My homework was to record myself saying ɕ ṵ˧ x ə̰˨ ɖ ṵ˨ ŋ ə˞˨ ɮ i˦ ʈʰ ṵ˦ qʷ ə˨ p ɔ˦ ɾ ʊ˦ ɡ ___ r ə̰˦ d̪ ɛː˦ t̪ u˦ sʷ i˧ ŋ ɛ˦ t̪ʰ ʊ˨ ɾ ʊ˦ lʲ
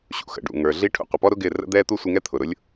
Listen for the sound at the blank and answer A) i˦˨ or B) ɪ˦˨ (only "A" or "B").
B